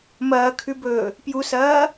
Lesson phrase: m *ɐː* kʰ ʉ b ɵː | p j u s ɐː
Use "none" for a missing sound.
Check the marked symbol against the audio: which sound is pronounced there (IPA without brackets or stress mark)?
ɐː